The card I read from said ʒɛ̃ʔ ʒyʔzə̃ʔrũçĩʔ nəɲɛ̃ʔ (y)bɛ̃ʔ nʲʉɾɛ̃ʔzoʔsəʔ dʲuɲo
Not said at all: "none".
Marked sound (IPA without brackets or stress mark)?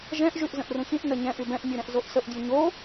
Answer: y